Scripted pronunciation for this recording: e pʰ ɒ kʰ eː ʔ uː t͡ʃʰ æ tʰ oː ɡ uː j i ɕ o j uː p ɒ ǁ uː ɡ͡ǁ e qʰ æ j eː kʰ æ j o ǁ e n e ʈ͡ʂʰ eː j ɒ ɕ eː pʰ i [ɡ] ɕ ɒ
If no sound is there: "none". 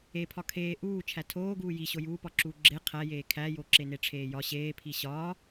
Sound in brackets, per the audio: none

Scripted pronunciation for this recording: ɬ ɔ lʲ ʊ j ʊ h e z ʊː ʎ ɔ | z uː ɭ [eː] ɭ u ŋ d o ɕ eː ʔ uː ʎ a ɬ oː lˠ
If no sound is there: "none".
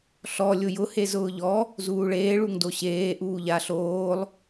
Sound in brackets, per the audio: eː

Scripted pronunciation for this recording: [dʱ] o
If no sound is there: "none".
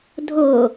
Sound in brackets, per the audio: dʱ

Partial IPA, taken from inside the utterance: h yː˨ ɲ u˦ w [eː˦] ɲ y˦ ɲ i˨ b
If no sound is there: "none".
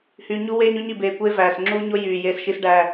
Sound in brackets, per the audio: eː˦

